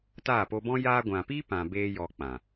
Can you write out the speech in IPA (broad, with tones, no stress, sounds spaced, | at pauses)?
t aː˦˨ p o˧ b ɔ̃˦ j aː˧ ɡʷ ã˨ p i˦ p ã˨ b eː˦ j ɔ˧ k͡p ã˨